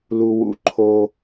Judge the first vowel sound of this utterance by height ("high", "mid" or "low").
high